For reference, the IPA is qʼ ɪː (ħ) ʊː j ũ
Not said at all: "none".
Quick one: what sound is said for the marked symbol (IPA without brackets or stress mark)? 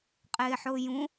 ħ